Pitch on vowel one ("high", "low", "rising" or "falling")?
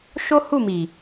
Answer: high